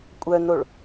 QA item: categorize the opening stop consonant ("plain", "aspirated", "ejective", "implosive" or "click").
ejective